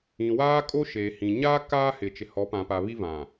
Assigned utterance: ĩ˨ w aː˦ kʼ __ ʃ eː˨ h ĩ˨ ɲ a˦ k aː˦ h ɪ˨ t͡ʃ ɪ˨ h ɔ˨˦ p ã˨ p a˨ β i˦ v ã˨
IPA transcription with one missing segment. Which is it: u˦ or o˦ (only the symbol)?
o˦